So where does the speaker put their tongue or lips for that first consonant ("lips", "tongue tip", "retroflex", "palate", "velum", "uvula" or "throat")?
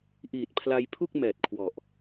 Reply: throat